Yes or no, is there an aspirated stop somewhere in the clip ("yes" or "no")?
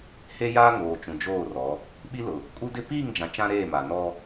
no